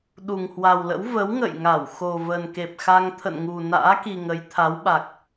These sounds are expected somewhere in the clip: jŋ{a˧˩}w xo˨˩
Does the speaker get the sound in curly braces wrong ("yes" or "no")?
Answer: no